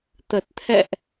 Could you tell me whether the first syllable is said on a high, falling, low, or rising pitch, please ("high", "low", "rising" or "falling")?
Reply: low